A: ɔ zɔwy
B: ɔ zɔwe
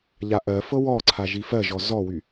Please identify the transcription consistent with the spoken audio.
A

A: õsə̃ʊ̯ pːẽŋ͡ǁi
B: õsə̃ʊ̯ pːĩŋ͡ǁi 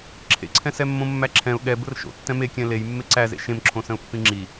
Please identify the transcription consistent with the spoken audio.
B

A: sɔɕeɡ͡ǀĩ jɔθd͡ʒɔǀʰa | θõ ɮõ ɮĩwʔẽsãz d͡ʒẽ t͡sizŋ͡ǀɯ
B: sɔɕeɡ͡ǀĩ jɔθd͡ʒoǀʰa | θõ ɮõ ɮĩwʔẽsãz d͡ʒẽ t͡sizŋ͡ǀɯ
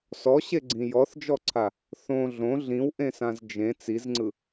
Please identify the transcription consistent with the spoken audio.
A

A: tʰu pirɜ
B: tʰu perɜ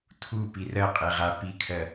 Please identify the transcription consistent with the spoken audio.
A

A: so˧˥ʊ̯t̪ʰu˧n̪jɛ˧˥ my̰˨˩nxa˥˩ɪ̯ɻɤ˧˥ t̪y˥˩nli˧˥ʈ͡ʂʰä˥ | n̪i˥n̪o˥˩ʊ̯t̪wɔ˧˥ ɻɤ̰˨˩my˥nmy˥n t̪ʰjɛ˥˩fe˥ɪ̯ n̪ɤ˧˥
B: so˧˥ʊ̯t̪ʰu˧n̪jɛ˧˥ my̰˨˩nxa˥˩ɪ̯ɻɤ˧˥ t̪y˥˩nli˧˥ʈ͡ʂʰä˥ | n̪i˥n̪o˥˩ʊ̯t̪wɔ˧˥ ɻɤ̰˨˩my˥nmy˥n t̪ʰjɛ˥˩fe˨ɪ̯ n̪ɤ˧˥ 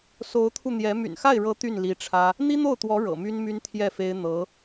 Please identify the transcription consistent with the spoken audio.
A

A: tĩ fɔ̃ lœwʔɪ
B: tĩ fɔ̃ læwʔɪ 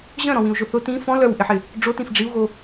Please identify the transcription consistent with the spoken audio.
A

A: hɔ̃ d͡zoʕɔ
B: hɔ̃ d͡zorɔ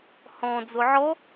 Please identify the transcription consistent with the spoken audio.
A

